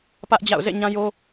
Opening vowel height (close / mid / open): open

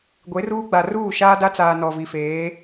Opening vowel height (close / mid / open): mid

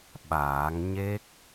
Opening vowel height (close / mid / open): open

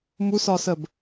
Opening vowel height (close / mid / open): close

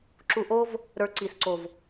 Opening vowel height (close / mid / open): close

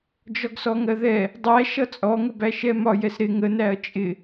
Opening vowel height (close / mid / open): open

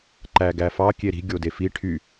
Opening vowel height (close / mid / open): open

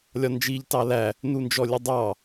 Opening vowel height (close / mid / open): open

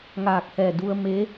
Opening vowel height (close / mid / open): open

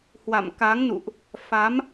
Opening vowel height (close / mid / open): open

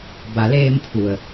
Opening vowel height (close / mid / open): open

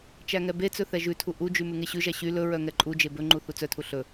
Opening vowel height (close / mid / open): open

